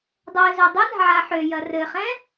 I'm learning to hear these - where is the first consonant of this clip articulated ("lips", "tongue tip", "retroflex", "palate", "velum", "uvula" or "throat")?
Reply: tongue tip